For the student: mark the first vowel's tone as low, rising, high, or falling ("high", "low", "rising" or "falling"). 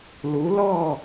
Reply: rising